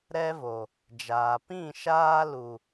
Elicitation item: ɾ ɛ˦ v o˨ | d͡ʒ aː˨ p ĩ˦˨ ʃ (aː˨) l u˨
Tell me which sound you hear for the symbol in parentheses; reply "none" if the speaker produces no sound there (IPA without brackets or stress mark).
aː˦